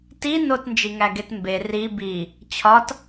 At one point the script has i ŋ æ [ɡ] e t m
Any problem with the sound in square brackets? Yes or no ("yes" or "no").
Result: no